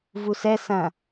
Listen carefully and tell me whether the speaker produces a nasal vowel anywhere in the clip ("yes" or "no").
yes